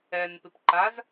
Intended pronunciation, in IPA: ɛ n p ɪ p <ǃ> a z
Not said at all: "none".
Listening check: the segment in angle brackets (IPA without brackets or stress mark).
ǃ